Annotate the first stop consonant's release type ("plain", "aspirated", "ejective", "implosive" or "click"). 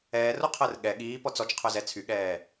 aspirated